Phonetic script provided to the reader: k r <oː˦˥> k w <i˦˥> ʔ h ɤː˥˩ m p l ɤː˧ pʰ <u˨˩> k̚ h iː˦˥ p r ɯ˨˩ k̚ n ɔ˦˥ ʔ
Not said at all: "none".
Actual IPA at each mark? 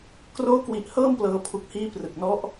oː˦˥, i˨˩, u˨˩

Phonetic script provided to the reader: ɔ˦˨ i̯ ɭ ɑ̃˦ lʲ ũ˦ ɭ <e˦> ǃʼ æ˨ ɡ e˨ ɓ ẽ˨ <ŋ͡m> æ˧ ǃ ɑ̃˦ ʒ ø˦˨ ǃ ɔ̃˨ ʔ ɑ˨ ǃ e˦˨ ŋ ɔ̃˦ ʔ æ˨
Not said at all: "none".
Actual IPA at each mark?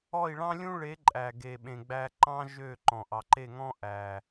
e˨˦, ɡ͡b

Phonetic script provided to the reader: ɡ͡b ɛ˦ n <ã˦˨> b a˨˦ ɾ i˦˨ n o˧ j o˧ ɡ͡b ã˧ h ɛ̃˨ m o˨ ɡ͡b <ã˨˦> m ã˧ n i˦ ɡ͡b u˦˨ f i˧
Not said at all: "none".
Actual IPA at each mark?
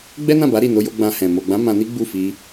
ã˦˨, ã˨˦

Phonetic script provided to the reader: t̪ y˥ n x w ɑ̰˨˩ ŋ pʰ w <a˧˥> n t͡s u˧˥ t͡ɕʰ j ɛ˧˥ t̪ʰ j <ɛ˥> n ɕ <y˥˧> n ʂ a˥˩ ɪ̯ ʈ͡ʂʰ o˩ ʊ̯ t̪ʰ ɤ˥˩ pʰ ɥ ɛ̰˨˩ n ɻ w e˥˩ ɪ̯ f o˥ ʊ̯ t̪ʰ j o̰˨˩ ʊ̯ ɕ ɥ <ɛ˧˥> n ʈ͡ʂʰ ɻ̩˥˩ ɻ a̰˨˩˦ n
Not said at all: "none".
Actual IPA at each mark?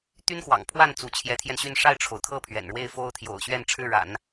a˥˩, ɛ˧, y˥˧, ɛ˥˧

